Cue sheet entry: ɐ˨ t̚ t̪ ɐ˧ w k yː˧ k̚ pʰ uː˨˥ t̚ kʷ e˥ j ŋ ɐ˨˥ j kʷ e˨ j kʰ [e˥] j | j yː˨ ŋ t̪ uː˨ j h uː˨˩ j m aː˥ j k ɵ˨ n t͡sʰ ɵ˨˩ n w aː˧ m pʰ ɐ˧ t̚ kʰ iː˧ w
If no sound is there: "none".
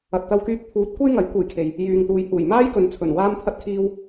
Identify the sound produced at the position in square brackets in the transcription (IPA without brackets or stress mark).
e˨